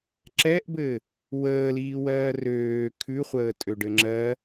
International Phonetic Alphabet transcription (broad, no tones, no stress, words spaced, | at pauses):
ǁɛʔbɘ | wəːliːwɜː røː kʰʉχʷəːtʼøɖɘ ŋ͡ǁɜ